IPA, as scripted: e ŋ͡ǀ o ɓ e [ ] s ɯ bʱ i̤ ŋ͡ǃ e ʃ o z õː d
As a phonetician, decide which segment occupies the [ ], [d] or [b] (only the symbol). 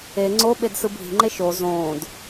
d